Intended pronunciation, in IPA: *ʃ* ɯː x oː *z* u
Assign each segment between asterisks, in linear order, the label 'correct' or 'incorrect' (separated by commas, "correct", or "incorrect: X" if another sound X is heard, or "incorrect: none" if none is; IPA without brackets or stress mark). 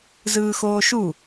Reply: incorrect: z, incorrect: ʃ